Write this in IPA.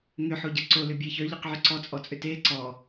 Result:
ŋʏ ħoɟəǀo lʏbʲɛçœ ʎəqʕʏǀɔ t͡sʼɔt͡sʼʏte ǀɔ

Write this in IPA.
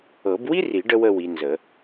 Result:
ɤ˨˩˦bwi˥ri˨˩˦ ɖə˥wə˥˧wi˨˦ nzə˨˩˦

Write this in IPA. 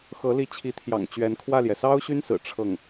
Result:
xɤ˧˥li˧˥ t͡ɕʰi˧˥t̪ʰjɑ̰˨˩ŋ t͡ɕɥɛ˧˥n kʰwä˥˩ljɛ˩ sɑ˥ʊ̯ɕy˥nsɹ̩˨˩ ʈ͡ʂʰɤ˥˩ŋ

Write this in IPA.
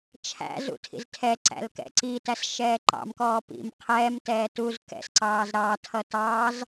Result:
t͡ʃʰæ̰zṵ tʰḭztʰɛǀæ̰l kɛ̰ǀitæs ʃɛːǃɑ̰mkɔː pḭm qʰɛːmtɛː tuz kɛ̰sǀɑːz ɾɑtʰʌ tɑːz

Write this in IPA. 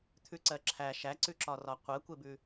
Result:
t̪ʰʉǀɜǁʰæ ʃæǀʉǁɒrɒ qʷɜkʷebʉ

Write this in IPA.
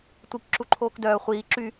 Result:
tʷik ǁuǃʰoːkdœː χʷiː ǁy

